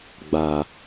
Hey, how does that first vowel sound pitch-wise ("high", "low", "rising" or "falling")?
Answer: low